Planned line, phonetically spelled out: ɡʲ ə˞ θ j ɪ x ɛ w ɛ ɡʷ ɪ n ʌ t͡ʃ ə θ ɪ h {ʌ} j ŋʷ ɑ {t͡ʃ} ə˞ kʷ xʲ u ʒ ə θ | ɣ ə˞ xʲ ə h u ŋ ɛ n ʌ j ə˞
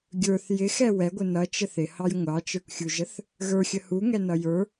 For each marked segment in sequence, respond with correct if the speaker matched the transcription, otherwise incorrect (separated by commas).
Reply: incorrect, correct